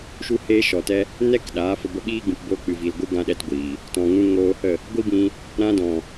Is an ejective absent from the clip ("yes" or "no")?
yes